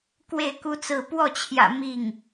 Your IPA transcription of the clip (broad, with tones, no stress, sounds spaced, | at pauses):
k w e˥˩ ɪ̯ k u˥ t͡s ɹ̩˥˧ p w ɔ˥˩ t͡ɕʰ j ä̰˨˩ m i˥˩ ŋ